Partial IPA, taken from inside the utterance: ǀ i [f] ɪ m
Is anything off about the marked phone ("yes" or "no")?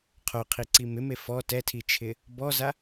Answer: yes